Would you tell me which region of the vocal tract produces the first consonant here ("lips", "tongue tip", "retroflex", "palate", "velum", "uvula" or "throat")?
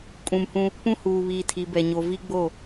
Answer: velum